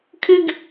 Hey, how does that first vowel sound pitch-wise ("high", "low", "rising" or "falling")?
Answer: high